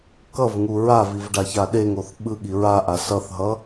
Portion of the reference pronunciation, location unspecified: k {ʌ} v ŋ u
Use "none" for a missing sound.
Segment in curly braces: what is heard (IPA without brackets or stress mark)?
ʌ